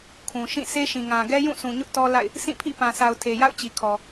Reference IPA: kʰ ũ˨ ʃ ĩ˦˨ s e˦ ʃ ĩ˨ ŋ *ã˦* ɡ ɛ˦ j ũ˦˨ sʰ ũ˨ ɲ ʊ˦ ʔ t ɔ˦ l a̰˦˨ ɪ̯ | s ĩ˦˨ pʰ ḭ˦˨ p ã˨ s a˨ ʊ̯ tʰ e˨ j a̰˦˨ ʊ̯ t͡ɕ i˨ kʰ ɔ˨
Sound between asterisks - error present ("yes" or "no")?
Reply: yes